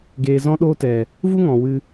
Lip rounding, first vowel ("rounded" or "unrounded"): unrounded